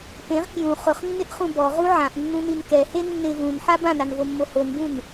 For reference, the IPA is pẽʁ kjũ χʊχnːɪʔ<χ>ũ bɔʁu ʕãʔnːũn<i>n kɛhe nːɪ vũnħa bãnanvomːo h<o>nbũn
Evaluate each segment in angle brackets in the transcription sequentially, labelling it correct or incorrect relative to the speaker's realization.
correct, correct, correct

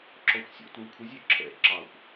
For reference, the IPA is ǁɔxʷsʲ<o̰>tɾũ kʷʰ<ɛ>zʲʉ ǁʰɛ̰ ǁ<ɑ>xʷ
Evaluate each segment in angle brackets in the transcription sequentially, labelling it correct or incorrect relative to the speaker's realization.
correct, incorrect: ə, correct

